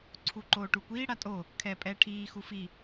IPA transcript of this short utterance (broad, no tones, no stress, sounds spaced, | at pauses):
ǀʰ u ǃ oː ʈ u kʷ iː ɽ a tʼ o | kʰ ɛː pʼ ɛː ʈʰ iː x u f i